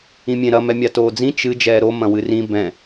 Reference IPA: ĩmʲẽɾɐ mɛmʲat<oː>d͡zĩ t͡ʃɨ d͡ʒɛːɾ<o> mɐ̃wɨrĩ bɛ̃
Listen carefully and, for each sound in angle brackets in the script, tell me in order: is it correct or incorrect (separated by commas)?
correct, correct